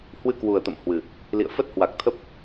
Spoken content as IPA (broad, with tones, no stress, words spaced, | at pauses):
hwɨ˧kwu˨˩ə̯t̪ə̰˧˨m hwɨ˨˩ | lḭ˧˨ə̯fə˦˥t̚hwa˨˩k̚t̪ʰə˦˥p̚